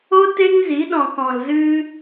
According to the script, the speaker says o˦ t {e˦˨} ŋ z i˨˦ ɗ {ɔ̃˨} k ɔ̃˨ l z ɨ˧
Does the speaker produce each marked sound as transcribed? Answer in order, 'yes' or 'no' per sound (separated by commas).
no, yes